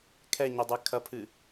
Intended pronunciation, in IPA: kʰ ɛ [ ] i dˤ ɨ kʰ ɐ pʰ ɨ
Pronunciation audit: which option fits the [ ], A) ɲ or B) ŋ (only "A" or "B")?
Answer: A